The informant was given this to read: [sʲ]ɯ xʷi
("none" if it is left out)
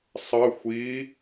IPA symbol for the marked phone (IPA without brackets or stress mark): sˤ